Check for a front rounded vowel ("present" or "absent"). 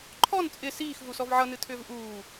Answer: present